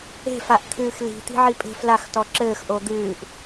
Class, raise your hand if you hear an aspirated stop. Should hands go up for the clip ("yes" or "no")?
yes